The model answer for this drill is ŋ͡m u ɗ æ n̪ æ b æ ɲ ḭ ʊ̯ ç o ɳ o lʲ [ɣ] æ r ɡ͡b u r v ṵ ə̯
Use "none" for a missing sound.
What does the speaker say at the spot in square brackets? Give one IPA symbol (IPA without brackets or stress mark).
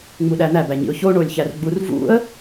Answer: ç